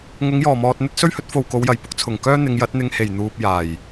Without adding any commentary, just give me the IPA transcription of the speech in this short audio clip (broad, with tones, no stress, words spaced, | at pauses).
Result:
ŋʊ˨˧ŋjɔː˨˩mɔː˨t̚ n̪ɵ˥t̚ sɵ˥ɥhɵ˨˥t̚ fo˨wko˨˧wjɐ˨˩jpʊ˧k̚ t͡sʰʊ˨˩ŋkœː˥ n̪ɪ˨˧ŋjɐ˨˥t̚ n̪ɪ˧ŋhe˨˩j n̪uː˧p̚jaː˨˩j